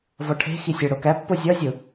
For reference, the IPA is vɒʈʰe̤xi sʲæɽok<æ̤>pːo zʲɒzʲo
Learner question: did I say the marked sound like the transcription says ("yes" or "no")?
no